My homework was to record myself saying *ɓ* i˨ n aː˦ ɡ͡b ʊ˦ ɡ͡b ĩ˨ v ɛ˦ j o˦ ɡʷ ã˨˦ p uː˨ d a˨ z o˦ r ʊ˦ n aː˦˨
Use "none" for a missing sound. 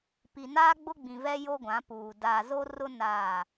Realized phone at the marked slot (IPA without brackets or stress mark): p